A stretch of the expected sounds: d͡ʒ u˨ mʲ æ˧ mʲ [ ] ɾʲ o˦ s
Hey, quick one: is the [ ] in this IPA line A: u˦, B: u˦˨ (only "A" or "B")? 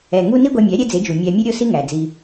A